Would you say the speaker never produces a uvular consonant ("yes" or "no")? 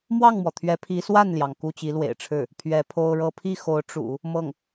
yes